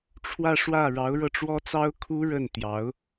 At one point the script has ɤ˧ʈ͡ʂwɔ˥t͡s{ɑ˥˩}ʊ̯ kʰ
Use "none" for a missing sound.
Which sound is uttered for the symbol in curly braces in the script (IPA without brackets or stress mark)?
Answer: ɑ˥